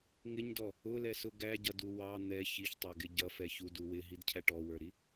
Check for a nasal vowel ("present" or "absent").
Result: absent